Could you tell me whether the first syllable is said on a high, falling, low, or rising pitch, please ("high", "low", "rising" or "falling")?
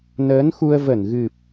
rising